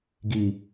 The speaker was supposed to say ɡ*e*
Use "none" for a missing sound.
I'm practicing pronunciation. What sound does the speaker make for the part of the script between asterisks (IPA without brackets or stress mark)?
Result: i